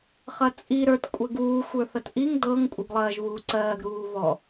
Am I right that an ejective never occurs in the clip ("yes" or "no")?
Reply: no